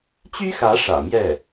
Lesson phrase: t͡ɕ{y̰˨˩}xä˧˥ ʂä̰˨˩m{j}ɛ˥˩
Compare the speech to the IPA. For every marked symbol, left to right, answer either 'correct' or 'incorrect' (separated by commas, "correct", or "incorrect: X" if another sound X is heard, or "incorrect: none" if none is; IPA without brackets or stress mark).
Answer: incorrect: y˥, correct